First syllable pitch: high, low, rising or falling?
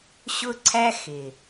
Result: high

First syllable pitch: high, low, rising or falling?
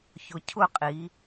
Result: low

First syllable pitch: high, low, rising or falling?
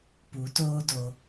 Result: rising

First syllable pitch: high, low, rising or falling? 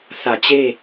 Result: low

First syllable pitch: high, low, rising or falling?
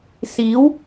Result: rising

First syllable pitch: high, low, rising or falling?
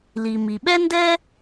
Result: low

